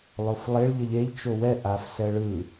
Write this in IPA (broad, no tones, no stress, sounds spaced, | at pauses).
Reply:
lˠ o f lˠ e ɭ ʎ ə ʎ e ʎ t͡ʃ o w ɛ ʔ a f s ɛ ɭ ɯ